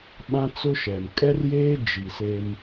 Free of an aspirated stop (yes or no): yes